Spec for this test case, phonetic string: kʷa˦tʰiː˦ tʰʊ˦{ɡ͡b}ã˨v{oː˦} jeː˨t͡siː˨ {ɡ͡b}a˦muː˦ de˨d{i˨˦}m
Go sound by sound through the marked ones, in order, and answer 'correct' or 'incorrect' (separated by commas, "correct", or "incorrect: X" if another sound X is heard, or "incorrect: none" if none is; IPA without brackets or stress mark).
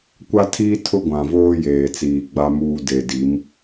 incorrect: ɡʷ, correct, correct, correct